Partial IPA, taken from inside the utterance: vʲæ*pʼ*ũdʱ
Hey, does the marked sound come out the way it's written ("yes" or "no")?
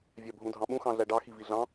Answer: no